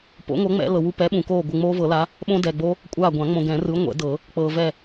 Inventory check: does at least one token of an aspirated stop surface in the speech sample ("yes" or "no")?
no